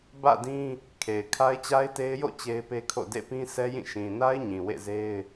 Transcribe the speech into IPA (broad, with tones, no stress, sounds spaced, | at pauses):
b ä̰˦˨ d ĩ˦ | kʰ e˨ ɪ̯ kʰ a˦ ɪ̯ t͡ɕ a˦ ɪ̯ t e˦ ɪ̯ j o̰˦˨ t͡ɕ e˦ ɪ̯ p e˦ kʰ o̰˦˨ d ḛ˦˨ p ĩ˦ sʰ ɛ˦ j ĩ˦˨ ʃ ĩ˨ n a˦ ɪ̯ ɲ ĩ˨ w ḛ˦˨ z e˦ ɪ̯